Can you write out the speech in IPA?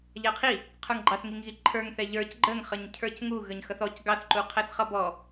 ʎ æ qʰ i | qʰ ə˞ ŋ ɡ͡ǃ ɑ θ ŋ i ŋ ɣ i ǃʰ ə˞ ŋ θ ɛ ʎ ə˞ c ɡ͡ǃ ə ŋ χ ə ɲ cʰ ə˞ c ŋ u ɣ ə ɲ x ʌ θ ɔ c ɡ ɑ θ ǃ u qʰ æ θ χ ʌ b ɔ

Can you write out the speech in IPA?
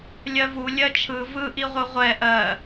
lʲ ɜ v u lʲ ɜ t͡ʃʰ ɯ v ɯ ʔ i ʁʷ ɯ ʁʷ ɛ ʔ ɜ

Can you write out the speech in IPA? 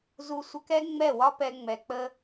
z u˧ sʷ ə˧ k ɛ˦ ŋ͡m ɛ˦˨ w ɒ˦ p ɛ˧ ŋ͡m ɛ˨ k͡p ə˧

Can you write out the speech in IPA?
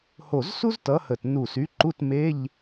h o˧˩ z s u˥ z t ʌ˨˥ h ə˧˩ t n u˧˩ s y˨˥ ǃ u˧˥˧ t m e˧˥˧ ʎ

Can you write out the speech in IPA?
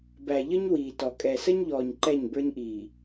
b æ˨ ʎ ə˦ ɲ w iː˨ t ɔ˨ kʼ ɛ˨ s ə˦ ɲ ʎ ɔː˨ ɲ ǃ ɛ˦˨ ɲ b ə˞˦ ɲ ʔ iː˨

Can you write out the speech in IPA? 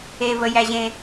e v ə j æ ʑ ẽ

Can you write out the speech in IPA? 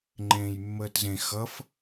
ŋ͡ǃ ẽː j mː əː t z ẽ x ʌ f

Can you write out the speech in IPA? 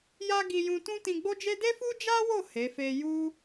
j a˦ ɡ i˧ j ũ˧ t ũ˦ t ĩ˧ ɡ͡b o˦ d͡ʒ e˦ d e˦ f u˦ d͡ʒ a˦ w o˦˨ h e˨˦ f e˦ j u˦

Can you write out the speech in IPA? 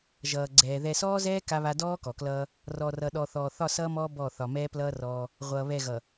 ʒ ʌː˨ ɡ͡ǀ ɛː˨ ð ɛ˨ s ɔː˦ z ɛː˦ k a˦ β a˦ d ɔː˦ k ɔ˨ k l ʌː˦ | r ɔ˨ r ʌ˨ ɗ ɔ˨ θ ɔː˨ θ ɒ˦˨ s ʌː˦ m ɔː˦ b ɔ˦˨ θ ɒ˨ m ɛː˦ p l ʌː˦ r ɔː˦ | ʁʷ ʌː˨ β ɛ˦˨ ɣ ʌ˨

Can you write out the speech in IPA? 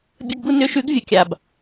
bʲ ə˧˥˧ ɡ b u˥˧ n ʏ˨˥ ʃ ʉ˨˥ ɡ vʲ ə˨˥ kʲ a˨˩ b

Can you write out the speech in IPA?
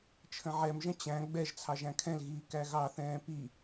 t͡ʃʰ ə̃ ʕ ɛ m ʒ ə̃ t͡ɕ æ̃ ɡ͡b ɛ ʒ t͡sʰ ɑ ʒ æ̃ kʰ ɛ̃ l ɣ iː k æ ɣ ɑ θ ɛ̃ː p i

